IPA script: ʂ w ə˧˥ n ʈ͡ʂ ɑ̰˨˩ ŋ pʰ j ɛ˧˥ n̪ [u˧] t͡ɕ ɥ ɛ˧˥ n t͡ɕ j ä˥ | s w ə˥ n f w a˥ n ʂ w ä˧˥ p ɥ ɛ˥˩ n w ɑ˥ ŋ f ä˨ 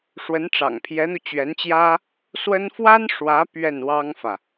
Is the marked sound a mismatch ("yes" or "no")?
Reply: no